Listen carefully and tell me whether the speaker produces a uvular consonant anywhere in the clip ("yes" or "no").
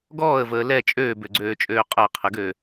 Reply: yes